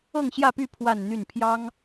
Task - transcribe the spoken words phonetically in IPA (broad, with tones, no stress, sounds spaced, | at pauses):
ɤ˥˧ ŋ ɕ j ä˥˧ p y˥˧ pʰ w a˥˧ n n̪ y˥˩ n pʰ j ɑ˥ ŋ